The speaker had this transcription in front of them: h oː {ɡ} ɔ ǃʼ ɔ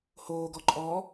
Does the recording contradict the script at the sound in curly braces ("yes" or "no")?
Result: no